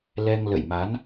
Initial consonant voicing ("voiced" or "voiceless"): voiced